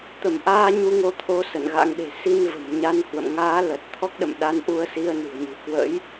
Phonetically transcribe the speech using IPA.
t̪ ə˧˩ m ʔ aː˧ ɲ u˧ ŋ o˧ t̪ʰ o˨˦ s ə̰˧˨ n ɣ a̰˧˥ ŋ ɗ e̤˨˩ s i˧ n v ə̤˨˩ m ɲ a˨˦ n h w ə̰˧˨ m ŋ aː˨˦ l ə˨˩ t̚ t̪ʰ ɔ˦˥ k̚ ɗ ə̰˧˨ m ɗ a˨˦ n ʔ u˧ ə̯ s i˧ ə̯ n ṳ˨˩ ə̯ ɲ ɨ̤˨˩ k w ə̰˧˥ j

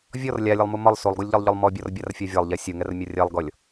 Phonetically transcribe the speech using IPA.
vʲ ɔ r lʲ a lʲ ɛ lˠ m u m ɒ lˠ s u lˠ ɡ u lʲ ʎ ɒ lˠ ʎ ɔ lˠ m ɔ bʲ ɔ r bʲ a r fʲ ɒ vʲ ɒ lˠ ʎ ɛ sʲ u ŋ ɛ r mʲ ɒ rʲ ɛ lˠ ɡ ɔ lʲ

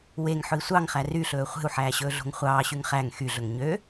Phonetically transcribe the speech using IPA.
w e ŋ ħ ɵ i̯ sʷ ɑ ŋ χ æ r y ɬ ɵː χʷ e̤ u̯ ħ æː ɕ ɵː ɮ o̤ ŋ χʷ ɑː ɕ y ŋ χ æ ŋ x y ɮ ɵ ŋ ɲ ø

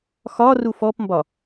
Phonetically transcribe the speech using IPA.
x ɒ r u f ɔ p m b ɒ

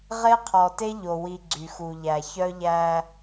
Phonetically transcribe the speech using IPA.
ʁ e˦ qʰ ɔ˨ t e˦ ʎ o˨ w i˨ ɡ͡ǀ y˨ x u˨ ʎ æ˨ ç œ˦ ʎ æ˦

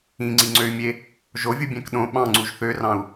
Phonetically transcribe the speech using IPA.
ĩ ŋ͡ǀ i ŋ͡ǀ ø y̯ mʲ e | ʒ o vʲ u bʲ æ̃ k ɗ õ ɓ ɑ̃ ŋ͡ǀ u ʒ θ ø r ɑ̃ u̯

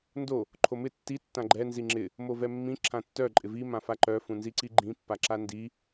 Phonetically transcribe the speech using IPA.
n d o | ǃʰ o m ɪ tː i tː ã ɡ͡ǃ ɛ n z i ŋ͡ǁ ɪ | m o v ɛ mː ĩ ǁʰ ã tː œ ǃʼ ɪ v i m ã f a ǃ œ f ũ n z i ǀ i ɡ͡ǃ ĩ pː a ǁ a n d i

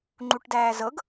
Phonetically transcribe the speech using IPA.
ŋ͡ǃ u ʈ d æː z ɤ ɡ

